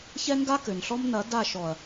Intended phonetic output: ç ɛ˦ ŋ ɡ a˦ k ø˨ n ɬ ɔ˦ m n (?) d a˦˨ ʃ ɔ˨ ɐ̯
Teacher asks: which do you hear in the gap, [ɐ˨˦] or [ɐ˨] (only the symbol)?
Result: ɐ˨˦